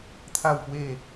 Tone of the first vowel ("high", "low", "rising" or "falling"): falling